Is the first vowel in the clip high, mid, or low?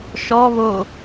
mid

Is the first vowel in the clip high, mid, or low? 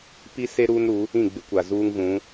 high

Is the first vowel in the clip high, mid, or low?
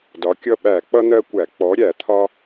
low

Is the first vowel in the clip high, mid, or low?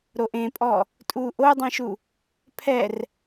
mid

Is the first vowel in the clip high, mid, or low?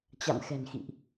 low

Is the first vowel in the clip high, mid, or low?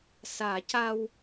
low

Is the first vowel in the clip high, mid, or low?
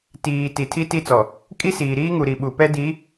high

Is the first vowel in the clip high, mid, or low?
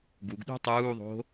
high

